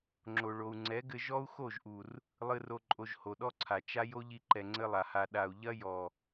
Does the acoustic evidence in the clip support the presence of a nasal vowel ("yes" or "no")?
no